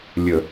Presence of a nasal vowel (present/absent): absent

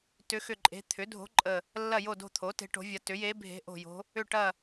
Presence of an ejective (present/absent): present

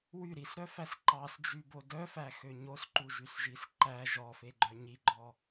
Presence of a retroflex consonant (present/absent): absent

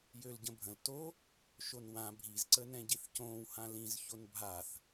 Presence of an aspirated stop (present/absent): absent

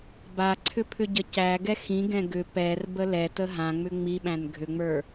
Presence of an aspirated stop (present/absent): present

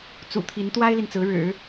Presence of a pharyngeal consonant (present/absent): absent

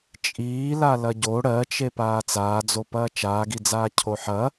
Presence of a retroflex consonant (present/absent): present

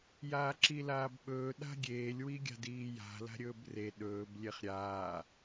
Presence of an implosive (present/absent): present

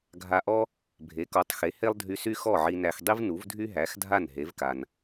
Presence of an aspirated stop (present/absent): absent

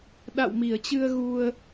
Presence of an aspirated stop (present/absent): absent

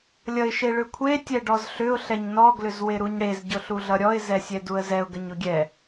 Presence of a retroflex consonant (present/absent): present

